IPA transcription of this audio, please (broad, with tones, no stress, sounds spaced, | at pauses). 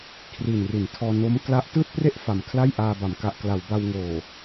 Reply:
kʰ r i˨˩ n r i˩˦ n tʰ ɔː˧ n o˦˥ m k l a˦˥ ʔ t ɯː˥˩ t̚ p r e˥˩ ʔ f a˨˩ m kʰ l a˥˩ j ʔ aː˧ b a˩˦ m k a˨˩ ʔ k l a˩˦ w b a˧ w ŋ oː˨˩